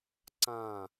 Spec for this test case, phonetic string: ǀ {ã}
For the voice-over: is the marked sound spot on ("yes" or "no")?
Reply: yes